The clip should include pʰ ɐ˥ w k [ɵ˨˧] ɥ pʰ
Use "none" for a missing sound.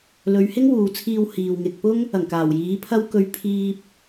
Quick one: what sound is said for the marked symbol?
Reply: ɵ˧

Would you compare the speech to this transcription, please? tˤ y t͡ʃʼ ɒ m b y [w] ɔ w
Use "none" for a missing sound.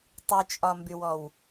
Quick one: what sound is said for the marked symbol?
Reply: w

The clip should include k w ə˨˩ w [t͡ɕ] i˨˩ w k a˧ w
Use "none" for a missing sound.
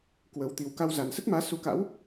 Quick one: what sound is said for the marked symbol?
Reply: t̪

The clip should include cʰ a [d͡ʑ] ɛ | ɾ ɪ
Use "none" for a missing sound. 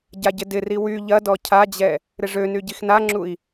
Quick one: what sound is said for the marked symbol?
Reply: d͡ʑ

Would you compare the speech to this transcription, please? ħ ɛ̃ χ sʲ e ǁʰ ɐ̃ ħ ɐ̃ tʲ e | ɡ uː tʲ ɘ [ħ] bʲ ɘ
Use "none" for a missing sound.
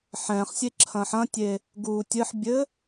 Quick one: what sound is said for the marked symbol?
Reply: ħ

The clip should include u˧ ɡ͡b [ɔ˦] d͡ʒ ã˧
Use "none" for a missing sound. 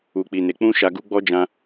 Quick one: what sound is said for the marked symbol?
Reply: ɔ˦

